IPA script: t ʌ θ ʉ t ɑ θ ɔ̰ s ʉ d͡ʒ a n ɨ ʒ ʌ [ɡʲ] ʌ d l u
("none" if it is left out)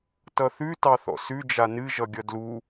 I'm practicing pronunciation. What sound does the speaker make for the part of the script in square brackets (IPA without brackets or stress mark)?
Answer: ɡʲ